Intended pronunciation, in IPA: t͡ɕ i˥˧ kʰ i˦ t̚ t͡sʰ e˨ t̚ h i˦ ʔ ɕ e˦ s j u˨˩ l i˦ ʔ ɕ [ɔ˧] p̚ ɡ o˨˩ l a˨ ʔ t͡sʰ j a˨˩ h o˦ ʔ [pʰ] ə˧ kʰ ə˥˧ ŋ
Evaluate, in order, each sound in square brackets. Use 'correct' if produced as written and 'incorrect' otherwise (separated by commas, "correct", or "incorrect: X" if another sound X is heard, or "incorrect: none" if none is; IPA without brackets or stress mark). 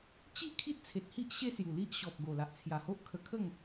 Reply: incorrect: ɔ˨, incorrect: kʰ